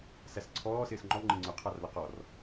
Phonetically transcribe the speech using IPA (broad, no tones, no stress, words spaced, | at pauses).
sæsǀʰɔː sɪːsŋ͡ǃɔ ŋ͡ǃɪŋ͡ǀʊ qʰɑrlʌqɔr